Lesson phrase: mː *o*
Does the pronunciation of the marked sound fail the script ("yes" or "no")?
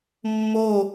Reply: no